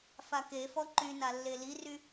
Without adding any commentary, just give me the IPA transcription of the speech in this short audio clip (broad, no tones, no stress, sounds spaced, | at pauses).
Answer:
f a k e f ɔ ǃ y n a lː e l i r y